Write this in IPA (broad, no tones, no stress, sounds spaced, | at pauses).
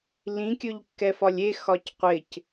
l ĩ kʲ ɵ ʎ kː ɛ f ɒ lʲ e x ɒ c qʷ ɪ c